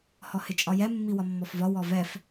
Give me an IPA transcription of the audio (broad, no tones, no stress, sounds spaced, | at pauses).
h ɔ h ɪ t͡ʃʼ ɒ j ɛ mː i w ɒ mː ɔ f v ɒ w ɔ v ɛ f